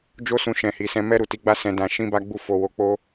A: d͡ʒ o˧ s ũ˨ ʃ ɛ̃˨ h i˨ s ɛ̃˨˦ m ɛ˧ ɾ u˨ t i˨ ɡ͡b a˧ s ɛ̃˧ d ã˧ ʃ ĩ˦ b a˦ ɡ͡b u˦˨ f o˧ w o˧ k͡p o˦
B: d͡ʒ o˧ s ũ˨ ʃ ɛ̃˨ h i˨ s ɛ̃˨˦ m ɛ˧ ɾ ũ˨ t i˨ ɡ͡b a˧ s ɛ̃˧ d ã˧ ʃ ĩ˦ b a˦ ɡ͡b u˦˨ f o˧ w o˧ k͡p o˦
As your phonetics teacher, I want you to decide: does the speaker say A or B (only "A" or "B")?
A